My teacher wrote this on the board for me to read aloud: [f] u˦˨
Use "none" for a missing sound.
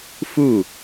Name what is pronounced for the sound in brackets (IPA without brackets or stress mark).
f